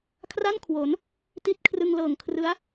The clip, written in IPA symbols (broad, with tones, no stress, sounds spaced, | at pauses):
kʰ r a˥˩ n kʰ w o˩˦ n | t i˥˩ t̚ kʰ r ɯ˧ ŋ l ɤː˨˩ ŋ kʰ r ɯ˦˥ a̯